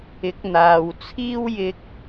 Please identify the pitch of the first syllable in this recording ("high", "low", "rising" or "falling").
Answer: rising